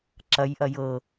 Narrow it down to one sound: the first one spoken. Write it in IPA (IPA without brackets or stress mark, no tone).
ǁ